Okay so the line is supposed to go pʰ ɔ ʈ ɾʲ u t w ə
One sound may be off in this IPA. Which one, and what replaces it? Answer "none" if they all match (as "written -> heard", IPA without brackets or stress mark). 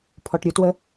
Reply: none